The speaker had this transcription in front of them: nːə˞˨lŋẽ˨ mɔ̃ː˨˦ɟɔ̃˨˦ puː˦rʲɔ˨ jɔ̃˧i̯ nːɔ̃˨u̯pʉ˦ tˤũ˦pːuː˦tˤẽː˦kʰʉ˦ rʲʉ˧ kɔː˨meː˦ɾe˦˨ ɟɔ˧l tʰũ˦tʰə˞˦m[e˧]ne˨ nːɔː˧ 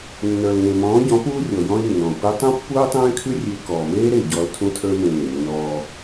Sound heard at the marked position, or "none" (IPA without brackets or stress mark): ẽ˧